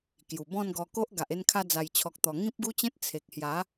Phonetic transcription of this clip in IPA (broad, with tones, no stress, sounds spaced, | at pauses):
k j u˨˩ b ɔ̃˥˧ n ɡ ɔ˧ k o˦ ʔ ɡ a˨ ʔ e˧ n kʰ a˧ d͡z a˨˩ j t͡ɕʰ ɔ˨ k̚ t̪ ɔ˨˩ ŋ ĩ˦ p̚ ɡ u˦ t͡ɕ ẽ˦ t̚ t͡sʰ e˨ k̚ h j a˨˦